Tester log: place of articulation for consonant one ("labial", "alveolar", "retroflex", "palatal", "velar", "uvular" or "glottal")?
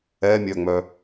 labial